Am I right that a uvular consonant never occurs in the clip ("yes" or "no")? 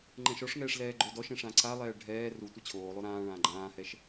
yes